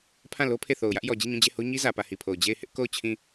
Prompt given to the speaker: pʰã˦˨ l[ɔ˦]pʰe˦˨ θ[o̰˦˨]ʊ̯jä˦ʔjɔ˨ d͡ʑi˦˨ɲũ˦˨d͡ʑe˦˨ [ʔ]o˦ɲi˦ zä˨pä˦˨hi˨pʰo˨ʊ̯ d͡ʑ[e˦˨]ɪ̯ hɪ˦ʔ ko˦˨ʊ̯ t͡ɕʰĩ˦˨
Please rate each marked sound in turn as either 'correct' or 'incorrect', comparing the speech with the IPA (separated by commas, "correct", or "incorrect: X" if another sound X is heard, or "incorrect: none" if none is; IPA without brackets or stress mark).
incorrect: o˦, incorrect: o˨, incorrect: h, correct